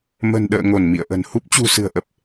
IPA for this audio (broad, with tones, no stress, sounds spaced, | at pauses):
m ə̤˨˩ n ɗ ə̰ː˧˨ ŋ o˧˩ n m ḭ˧˨ ə̯ ʔ ə̤˨˩ n h u˦˥ p̚ t͡ɕ ṳ˨˩ s ɨ̤˨˩ ə̯ ʔ ə˨˩ p̚